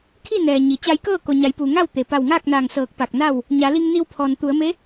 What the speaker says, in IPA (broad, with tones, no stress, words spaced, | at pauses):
kʰi˥˨nɛː˩ ɲi˩ t͡ɕa˧jkɤː˥˨ ko˩ɲa˩˧jpuː˩ŋa˥˨w t̪e˩pa˧˩wŋaː˥˨k̚naː˧˩ŋ sɤː˧˩k̚pa˧˩k̚na˥˨w | ɲa˩˧li˧ŋni˧w pʰɔː˩nt̪u˩˧ə̯me˧˥